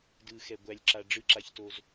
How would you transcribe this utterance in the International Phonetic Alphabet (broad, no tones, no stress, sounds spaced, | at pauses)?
d ɯ x ɛ ɡʷ æ lʲ ǁ a ɖ͡ʐ ɯ ǁ a ç t o z